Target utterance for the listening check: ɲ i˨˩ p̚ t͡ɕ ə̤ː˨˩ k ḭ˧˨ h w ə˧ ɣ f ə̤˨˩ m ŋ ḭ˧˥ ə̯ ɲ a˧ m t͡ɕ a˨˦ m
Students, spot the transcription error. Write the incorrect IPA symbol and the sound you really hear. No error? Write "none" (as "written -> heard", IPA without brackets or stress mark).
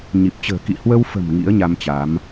ɣ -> w